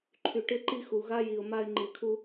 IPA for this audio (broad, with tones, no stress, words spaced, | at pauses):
ǃʰy˨ʈɪ˦ǃi˦ xu˨ɣa˦ ji˨ʊ̯ma˦ɪ̯ ŋ͡ǃi˨kʰu˦